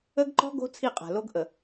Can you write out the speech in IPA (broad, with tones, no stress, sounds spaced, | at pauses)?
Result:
ə˦ ɡ ǃ ɔ̤˦ ɡ o̤˦ t͡sʰ i˦˨ qʼ a̤˨ l o˦ ɡ ʔ ə˨